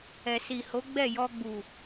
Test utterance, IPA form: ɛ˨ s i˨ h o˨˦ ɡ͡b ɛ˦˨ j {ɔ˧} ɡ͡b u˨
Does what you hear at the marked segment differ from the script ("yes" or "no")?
no